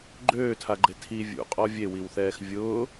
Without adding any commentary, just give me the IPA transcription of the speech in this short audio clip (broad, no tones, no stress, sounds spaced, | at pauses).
ɡ͡ǃ øː tʰ a ɡ͡ǃ e tʰ i vʲ ṵ qʼ ɔ vʲ e w i w θ ɛː x vʲ ʊː